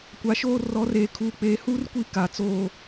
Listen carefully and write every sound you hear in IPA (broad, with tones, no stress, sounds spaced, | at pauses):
kʷ a˨˦ ʃ oː˦ r ɔ˨˦ r eː˨ kʰ uː˨ k͡p eː˨ h uː˦ r kʷ i˦˨ k a˨ t͡s oː˦